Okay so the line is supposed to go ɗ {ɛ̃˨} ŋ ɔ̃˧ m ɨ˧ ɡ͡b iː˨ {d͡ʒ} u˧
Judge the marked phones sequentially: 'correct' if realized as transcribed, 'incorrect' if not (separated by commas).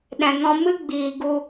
correct, incorrect